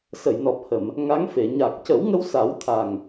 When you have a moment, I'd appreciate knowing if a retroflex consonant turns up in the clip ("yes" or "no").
no